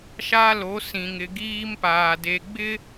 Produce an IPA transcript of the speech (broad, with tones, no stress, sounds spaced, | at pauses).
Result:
ʃ a˦ l o˨˦ s ĩ˨ ŋ ɪ˨ ɡ iː˦ m p aː˨ d e˨ ɡ͡b ɪ˦